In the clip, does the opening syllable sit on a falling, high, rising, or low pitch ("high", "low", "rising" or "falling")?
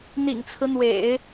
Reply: low